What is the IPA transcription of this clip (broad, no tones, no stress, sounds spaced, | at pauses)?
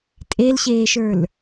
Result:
tʼ e l ɕ eː ʃ ə˞ l